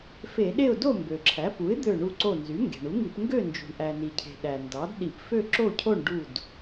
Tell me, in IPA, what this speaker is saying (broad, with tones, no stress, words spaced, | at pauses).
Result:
fe˧˩˧ɗe˥˨ʊ̯ do˥˨mbø˩ǁʰæ˩˥ pu˩˥ɪ̯d̪ø˧˩ ɳu˧˩ǀo˧˩nzy˩˥ ŋɡe̤˩ɳu˩˥ŋi˧˩˧p ŋɡø˥˨ nd͡ʒṳ˩ɳʔæ˩ni˩cʰe̤˩ ɗæ˩ndɑ˩˥d ɗi˧˩˧p fø˥˨ǁo˥˨cʰo˥˨ɳ ɖu˧˩d